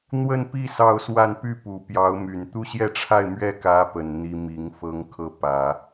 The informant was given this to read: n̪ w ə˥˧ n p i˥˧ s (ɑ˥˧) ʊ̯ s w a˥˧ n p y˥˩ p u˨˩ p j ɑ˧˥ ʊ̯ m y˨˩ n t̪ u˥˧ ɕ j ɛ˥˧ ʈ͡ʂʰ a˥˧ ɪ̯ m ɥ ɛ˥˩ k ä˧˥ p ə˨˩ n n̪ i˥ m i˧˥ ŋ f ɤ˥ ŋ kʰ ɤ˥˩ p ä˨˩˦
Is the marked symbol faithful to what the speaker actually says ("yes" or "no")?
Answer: yes